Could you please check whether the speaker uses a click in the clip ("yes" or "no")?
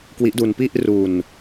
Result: no